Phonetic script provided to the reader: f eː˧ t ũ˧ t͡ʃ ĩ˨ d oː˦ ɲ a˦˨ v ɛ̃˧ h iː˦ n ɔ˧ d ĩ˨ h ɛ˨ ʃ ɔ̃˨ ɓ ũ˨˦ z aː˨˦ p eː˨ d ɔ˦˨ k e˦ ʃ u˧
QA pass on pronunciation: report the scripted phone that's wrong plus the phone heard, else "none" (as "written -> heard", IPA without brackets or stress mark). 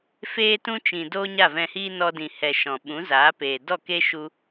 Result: none